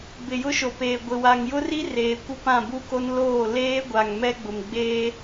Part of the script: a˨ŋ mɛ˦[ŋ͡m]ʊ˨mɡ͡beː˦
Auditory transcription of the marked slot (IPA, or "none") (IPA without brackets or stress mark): ɡ͡b